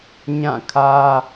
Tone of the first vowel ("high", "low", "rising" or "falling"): falling